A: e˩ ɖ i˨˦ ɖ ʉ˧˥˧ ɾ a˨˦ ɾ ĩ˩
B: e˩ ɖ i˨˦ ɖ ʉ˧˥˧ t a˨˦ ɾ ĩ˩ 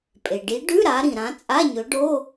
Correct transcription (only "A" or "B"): A